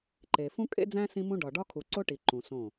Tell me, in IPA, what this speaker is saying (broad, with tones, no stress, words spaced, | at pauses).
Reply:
ǃe˨ fũ˦kʼḛ˦d͡zæ̃˦ sĩ˦mũ˦ ɖɒ˨ɖɒ˦ kʰu˨ǀo˦ʈi˨ ǃũ˨ sõ˦˨